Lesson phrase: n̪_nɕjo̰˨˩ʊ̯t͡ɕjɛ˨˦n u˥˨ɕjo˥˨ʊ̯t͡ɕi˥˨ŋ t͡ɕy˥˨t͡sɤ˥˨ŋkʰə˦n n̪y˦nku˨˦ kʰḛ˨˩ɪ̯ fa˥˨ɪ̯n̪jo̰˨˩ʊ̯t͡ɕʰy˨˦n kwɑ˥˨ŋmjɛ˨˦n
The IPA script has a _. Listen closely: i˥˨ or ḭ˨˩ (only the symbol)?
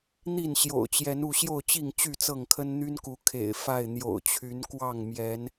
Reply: i˥˨